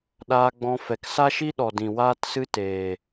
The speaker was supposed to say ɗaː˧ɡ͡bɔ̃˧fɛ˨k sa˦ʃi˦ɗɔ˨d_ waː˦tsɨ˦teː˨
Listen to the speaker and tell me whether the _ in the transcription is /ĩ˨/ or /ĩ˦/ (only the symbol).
ĩ˨